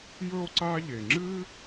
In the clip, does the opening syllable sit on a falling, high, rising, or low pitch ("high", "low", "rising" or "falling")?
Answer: high